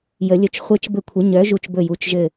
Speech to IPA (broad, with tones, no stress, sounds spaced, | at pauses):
j ə˨˩˦ lʲ ɵ˨˥ t͡ʃ χʷ e˧˥˧ t͡ʃ b ɘ˦˨ kʷʰ ə˨˥ ɲ œ˨˥ ʒ u˦˨ t͡ʃ b ɵ˦˨ j u˨˥ t͡ʃ ʒ ɘ˦˨